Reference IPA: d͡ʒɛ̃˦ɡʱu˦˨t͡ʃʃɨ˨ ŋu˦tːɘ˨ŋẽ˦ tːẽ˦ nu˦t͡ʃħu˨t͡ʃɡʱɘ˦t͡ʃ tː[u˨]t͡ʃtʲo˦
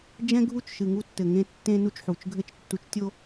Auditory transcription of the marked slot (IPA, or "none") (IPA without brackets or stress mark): u˨